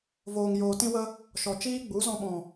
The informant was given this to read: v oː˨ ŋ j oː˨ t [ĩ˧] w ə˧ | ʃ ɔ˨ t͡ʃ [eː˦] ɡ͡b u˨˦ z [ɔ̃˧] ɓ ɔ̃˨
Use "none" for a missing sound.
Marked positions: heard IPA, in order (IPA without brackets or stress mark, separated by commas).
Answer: ĩ˧, iː˦, ɔ̃˧